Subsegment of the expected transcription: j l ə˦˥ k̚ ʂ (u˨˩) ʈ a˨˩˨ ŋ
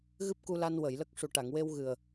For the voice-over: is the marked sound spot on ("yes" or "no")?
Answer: yes